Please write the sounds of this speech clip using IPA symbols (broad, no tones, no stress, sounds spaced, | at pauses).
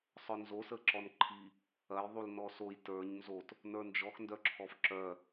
sˤ œ n z o s ə ǁ ɔ n ǃʰ i | ɐ j ðˤ u l n ɔ s o j t ə˞ ɲ n z o t | n ə˞ n d͡ʒ ɔ x n d œ ǁʰ ɔ f ǁ œ